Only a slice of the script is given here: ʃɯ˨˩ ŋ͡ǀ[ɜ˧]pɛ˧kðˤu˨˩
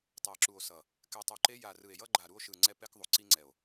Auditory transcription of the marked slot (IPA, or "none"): ɛ˧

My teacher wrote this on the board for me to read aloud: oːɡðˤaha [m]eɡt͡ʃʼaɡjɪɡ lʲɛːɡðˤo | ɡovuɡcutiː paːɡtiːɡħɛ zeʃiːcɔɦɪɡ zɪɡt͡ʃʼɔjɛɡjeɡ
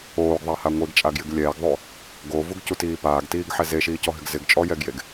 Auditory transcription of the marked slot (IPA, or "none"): ŋʷ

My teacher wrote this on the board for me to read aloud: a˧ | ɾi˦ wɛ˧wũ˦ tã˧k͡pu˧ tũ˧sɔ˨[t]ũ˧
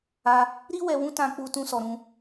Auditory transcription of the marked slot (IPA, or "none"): ɾ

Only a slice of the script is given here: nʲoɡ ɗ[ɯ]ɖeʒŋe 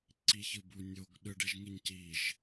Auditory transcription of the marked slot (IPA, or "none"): ɯ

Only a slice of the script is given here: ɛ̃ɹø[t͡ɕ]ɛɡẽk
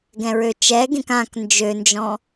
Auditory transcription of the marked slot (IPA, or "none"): t͡ʃ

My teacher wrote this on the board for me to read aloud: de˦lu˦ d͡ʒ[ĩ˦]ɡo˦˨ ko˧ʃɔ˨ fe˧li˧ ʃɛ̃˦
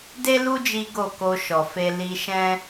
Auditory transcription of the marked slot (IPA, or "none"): i˦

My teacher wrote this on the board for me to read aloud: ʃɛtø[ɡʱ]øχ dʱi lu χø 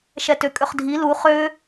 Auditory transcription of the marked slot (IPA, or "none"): kʼ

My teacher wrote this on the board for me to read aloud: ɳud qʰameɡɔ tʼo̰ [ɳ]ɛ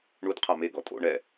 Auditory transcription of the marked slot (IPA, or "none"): ɳ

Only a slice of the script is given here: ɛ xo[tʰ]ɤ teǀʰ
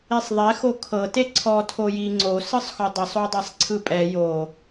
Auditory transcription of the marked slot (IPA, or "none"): kʰ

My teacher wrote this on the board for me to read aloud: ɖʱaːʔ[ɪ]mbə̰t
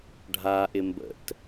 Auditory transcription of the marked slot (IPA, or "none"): ɪ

